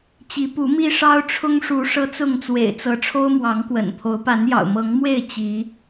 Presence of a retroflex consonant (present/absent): present